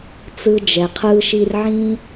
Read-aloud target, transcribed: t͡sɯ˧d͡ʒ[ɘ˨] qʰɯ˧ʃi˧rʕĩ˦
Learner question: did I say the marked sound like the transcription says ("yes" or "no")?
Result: no